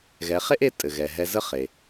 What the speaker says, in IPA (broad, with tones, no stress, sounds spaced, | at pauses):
ɣ ɛ˩˧ χ e˥ ʔ e˧˥ tʼ ɘ˩ ɣ ɛ˩ ɦ ɛ˧ z ə˥ χ e˩